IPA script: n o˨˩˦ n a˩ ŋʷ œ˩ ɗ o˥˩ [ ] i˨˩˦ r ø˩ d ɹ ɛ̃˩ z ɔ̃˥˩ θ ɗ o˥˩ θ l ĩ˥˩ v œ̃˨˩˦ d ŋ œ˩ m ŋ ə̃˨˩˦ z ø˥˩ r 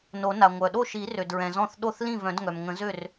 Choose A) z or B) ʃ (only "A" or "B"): B